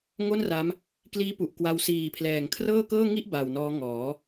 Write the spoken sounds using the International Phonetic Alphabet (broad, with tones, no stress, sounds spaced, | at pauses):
ŋ o˥˩ n r a˦˥ m | k l iː˦˥ p u˨˩ ʔ k w a˧ w s iː˨˩ pʰ l ɛː˨˩ ŋ kʰ r ɤː˥˩ k ɤː˥˩ ŋ i˥˩ ʔ b a˨˩ w n ɔː˦˥ ŋ ɔː˩˦